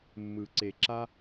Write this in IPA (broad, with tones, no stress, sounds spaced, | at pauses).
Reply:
mː ɯ˨ ǀ e˨ ǁ a˦